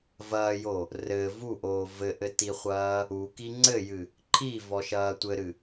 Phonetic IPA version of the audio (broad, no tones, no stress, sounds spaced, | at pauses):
v ɐː j o | r ɘ v u ʔ oː v ɘ ʔ ɘ t i χʷ ɐː | u k i ŋ͡ǀ ɘ j ɨ | ǃʰ i v ɔ ʃ ɐː tʷ ɘ ɾ ɨ